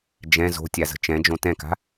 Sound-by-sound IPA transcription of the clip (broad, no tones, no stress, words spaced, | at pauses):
d͡ʒɛ̃ zo̤tʲazə̤ t͡ʃɛ̃d͡ʒõ tɛ̃ka̤